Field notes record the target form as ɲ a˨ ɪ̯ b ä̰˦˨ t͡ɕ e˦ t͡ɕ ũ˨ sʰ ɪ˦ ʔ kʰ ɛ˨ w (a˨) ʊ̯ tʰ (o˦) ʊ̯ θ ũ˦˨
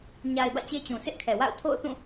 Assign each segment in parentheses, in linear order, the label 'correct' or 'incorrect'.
incorrect: a̰˦˨, incorrect: o̰˦˨

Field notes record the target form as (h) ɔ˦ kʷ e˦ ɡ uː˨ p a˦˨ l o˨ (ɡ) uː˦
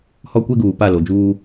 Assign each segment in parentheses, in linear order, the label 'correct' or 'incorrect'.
correct, incorrect: d͡ʒ

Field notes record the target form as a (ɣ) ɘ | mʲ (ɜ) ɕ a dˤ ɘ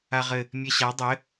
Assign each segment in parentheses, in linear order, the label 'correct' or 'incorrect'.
incorrect: ʁ, incorrect: ɛ

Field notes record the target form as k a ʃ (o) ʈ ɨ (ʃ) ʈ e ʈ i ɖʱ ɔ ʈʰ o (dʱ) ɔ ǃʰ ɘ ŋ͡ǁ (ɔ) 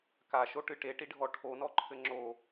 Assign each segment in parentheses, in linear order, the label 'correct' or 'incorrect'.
correct, incorrect: none, incorrect: n, incorrect: o

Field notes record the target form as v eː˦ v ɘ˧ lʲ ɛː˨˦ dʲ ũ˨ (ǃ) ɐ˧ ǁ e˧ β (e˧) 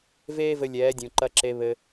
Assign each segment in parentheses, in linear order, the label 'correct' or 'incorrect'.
correct, incorrect: ɘ˧

